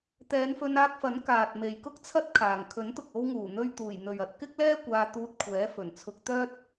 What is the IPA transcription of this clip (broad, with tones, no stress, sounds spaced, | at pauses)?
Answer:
t̪ ɛː˨˧ n f ɵ˧ n aː˧ k̚ f ɐ˨˥ n k aː˨ t̚ m e˨ j k ʊ˥ k̚ t͡sʰ ɐ˥ t̚ kʰ aː˨˩ ŋ kʰ ɵ˨˥ n t̪ ʊ˨ k̚ o˧ w ŋ uː˨˩ n̪ ɵ˧ ɥ t̪ uː˨˩ j n̪ ɵ˨ ɥ ɐ˨˥ t̚ k ɪ˥ k̚ l ɛː˥ kʷ aː˧ t̪ uː˧ t̚ kʷʰ ɛː˨˥ f ɵ˨˩ n t͡sʰ ʊ˧ k̚ t̪ œː˥ t̚